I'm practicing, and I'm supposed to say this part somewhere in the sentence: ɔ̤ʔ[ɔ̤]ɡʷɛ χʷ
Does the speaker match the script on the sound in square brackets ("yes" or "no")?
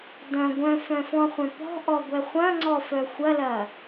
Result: no